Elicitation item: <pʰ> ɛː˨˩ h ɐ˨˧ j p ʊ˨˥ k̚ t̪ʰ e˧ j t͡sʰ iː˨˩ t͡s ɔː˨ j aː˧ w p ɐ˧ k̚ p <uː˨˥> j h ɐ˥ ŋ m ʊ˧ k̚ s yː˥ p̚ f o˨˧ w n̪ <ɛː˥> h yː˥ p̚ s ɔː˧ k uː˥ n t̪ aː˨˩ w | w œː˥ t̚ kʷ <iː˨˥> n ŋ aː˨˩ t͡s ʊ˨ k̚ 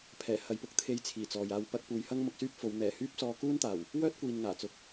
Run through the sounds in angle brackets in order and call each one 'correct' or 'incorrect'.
correct, incorrect, incorrect, incorrect

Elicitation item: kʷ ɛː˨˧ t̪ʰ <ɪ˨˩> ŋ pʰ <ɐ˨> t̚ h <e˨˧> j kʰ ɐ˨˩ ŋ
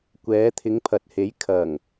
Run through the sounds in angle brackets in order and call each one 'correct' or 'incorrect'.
incorrect, correct, incorrect

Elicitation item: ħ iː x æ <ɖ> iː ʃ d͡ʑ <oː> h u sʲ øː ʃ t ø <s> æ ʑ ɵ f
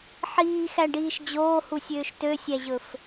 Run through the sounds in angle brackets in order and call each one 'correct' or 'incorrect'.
correct, correct, incorrect

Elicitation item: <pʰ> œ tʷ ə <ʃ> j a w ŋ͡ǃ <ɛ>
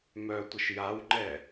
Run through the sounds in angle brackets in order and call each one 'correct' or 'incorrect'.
incorrect, correct, correct

